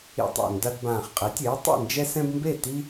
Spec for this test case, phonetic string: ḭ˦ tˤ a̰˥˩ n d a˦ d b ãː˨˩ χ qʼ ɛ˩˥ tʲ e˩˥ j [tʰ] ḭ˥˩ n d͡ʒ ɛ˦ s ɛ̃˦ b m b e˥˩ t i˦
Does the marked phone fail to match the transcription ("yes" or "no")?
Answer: yes